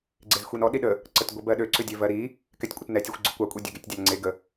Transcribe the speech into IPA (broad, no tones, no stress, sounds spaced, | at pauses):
ɡ͡ǀ e z xʷ i n ɔ ɗ i ɗ ə | ǀ ə t ɡʷ ɛ b ɜ ɗ ø ǀ ʏ dʲ ø v ɜ ɾ i | k ɛ tʲ kʷʼ ə t n ɛ tʲ a xʷ ɡ͡ǀ ʏ kʷ ɑ kʷʼ e dʲ ø ɡ e tʲ dʲ ɑ n ŋ͡ǀ e ɡ ə